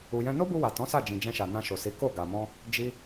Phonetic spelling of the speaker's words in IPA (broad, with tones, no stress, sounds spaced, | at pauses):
u˧ j ɛ̃˦ n o˦ b u˧ w a˨ t ɔ̃˨˦ s a˦˨ d͡ʒ ĩ˨ d͡ʒ ɛ̃˧ ʃ a˨ n ã˧ ʃ o˨ s i˨˦ k o˦˨ ɡ a˨ m ɔ̃˧ | d͡ʒ i˦